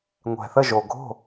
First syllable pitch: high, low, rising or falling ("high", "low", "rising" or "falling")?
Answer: low